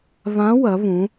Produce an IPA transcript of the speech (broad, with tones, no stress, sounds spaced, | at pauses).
β ã˧˥ w ɐ˩˧ β ũ˩˧